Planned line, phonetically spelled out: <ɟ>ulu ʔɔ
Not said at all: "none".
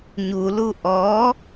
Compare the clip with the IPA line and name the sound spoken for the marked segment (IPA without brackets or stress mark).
ɲ